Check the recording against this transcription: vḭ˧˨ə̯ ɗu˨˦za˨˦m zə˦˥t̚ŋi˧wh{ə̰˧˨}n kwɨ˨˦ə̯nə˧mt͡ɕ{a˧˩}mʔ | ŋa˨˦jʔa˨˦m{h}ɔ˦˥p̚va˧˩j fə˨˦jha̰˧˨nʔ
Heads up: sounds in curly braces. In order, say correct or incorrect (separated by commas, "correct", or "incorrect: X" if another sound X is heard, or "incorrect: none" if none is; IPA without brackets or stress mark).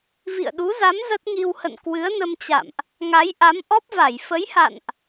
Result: correct, incorrect: a̰˧˨, incorrect: ʔ